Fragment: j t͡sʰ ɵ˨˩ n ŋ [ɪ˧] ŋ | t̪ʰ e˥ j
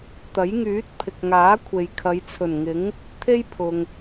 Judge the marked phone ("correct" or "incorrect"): incorrect